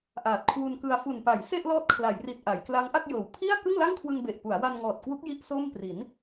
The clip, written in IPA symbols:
ʔ aː˨˩ t̚ kʰ w u˧ n k ɯ˧ a̯ f u˨˩ n p a˩˦ j s e˥˩ ʔ l ɔː˦˥ t̚ kʰ l a˩˦ j r i˨˩ t̚ ʔ a˩˦ j k l a˦˥ ŋ ʔ a˥˩ k̚ j ɤː˨˩ w pʰ i˥˩ a̯ k ɯ˥˩ ŋ l a˥˩ ŋ kʰ w ɯ˧ ŋ b e˨˩ ʔ p u˩˦ a̯ w a˧ n ŋ ɔː˨˩ t̚ k w u˦˥ k̚ j i˥˩ ʔ s oː˥˩ m p r i˩˦ n

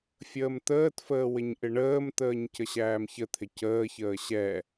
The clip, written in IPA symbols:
fʲ əː m t̪ əː t f əː w ɪ ɲ ʔ ɪ ɳ əː m t̪ əː ɲ c ə ɕ æː m ç ə t̪ʰ ɪ c əː ç əː ɕ ɛ

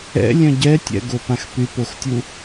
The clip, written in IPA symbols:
ɛ̰ lʲ œ̃ ɟ ɛ tʲ ɛ̰ ɡ o p ã x p y p o x tʲ u

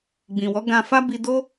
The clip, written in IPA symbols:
ɡ͡b ĩ˨ w ɔ˨˦ ɡ ã˧ f a˦ b i˧ d o˦

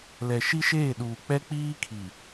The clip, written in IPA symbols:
l ɛ˨ ʃ i˦ ʃ eː˦˨ ɗ uː˨ k͡p ɛ˦ k͡p iː˦ kʰ i˨

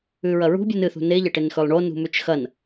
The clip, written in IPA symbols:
ʉ ɹ ɐ ɹ ṳ bʲ ɨ n ɨ θ ṳ n e ʎ ɐ ʈ e n x ɵ lˠ ɳ o n ṳ m ʉ t͡ʃ x ɐ n

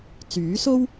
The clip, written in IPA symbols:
t͡s yː˨˥ s o˥ w

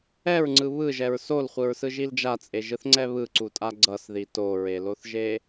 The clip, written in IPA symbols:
ɛ ɹ ŋ͡ǀ ɯ β ɯ ʒ ɛ ɹ s o l χʷ ɯ ɹ s ɯ ʒ i l d͡ʒ a t͡sʼ e ʒ ɯ θ ŋ͡ǀ ɛ β ɯ ǀ u tʼ a ɡ͡ǀ ʌ s ð i t o ɹ e l o θ ʒ e

